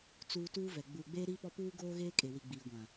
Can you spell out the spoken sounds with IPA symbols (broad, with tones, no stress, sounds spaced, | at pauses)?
t͡s uː˨ t uː˦ v ɛ˨ ɡ͡b uː˨ ɡ͡b eː˦ ɾ iː˦ p ɔ˦ p uː˦ ɡ oː˦ ɣ eː˦ kʼ e˨ w i˨ ɡ͡b iː˨ ɡʷ ã˨